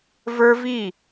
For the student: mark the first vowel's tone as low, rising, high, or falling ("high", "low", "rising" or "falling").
high